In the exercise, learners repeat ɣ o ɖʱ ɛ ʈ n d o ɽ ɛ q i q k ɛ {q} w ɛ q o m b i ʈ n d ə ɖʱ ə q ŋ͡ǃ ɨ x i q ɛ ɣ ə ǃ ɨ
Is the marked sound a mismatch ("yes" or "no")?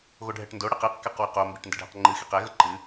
no